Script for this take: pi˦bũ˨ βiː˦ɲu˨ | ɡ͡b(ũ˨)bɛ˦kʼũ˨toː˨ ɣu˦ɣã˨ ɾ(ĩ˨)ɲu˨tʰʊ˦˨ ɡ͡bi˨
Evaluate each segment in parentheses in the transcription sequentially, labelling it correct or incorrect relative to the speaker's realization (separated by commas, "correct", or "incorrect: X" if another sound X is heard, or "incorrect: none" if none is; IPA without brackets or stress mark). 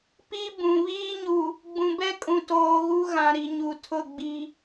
correct, incorrect: i˨